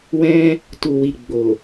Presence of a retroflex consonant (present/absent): absent